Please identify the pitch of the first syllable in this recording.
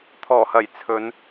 low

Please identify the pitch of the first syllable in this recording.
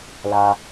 low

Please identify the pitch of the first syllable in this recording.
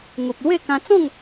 low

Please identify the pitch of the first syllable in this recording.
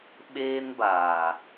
high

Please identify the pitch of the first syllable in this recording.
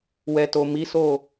low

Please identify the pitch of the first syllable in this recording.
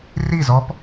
falling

